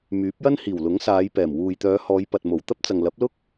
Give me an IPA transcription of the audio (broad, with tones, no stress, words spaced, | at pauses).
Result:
myː˨˥p̚jɐ˥nhiː˨˩w lʊ˨˥ŋsaː˨˧jpɛː˨˩m wuː˨jt̪œː˨˧ hɔː˨˧jpɐ˨t̚mo˨˩w t̪ɐ˥p̚t͡sɐ˨ŋ lɐ˨˥p̚lʊ˥k̚